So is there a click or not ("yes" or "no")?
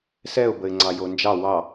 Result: yes